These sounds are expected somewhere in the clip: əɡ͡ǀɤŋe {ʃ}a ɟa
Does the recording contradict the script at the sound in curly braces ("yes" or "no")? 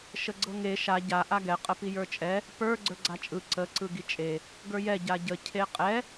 no